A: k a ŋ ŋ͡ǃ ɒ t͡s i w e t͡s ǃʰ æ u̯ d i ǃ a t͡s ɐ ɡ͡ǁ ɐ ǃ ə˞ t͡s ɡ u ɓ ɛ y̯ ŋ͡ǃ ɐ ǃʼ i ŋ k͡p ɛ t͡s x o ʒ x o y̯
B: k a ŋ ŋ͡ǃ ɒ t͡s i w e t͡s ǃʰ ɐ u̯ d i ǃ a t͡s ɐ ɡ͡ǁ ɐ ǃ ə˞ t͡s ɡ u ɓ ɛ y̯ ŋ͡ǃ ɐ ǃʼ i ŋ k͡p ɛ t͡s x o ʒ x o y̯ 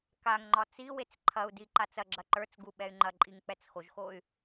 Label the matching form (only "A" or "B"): B